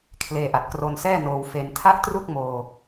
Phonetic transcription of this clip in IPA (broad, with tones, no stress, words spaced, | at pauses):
kʰleː˧ʔa˨˩t̚kro˧nsɛː˥˩ noː˧wfe˧n tʰa˥˩ʔtru˥˩k̚moː˧